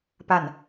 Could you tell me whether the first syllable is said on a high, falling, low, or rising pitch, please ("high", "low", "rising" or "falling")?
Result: falling